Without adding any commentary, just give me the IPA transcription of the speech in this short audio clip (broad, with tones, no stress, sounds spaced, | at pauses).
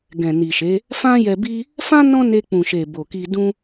ɡ ɛ̃˨ n i˨ ʃ e˨˦ | f ã˦ j ɛ˧ b i˦ | f ã˦ n ɔ̃˦ n e˧ k͡p ũ˨ ʃ e˨ b o˨ k i˧ d ũ˧